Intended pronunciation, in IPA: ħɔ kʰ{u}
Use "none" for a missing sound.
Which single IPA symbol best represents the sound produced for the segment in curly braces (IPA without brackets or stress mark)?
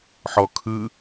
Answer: ɯ